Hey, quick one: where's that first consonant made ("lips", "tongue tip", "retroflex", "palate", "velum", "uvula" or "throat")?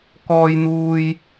velum